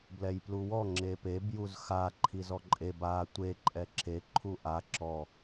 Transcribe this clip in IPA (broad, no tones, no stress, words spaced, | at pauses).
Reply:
blɛjpluwɔ ŋ͡ǁepeb juzxa ǃʰizɔǃʼeb a tʷe ǃʼɛǁe ǃʰuʔa ǁɔ